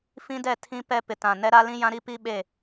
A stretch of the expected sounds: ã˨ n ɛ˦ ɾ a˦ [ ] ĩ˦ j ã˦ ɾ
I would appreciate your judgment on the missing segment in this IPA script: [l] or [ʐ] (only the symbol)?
l